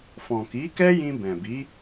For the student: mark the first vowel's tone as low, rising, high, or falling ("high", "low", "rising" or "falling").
low